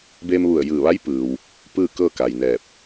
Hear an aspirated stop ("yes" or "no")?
no